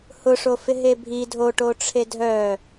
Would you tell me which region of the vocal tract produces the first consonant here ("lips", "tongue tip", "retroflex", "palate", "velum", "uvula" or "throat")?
throat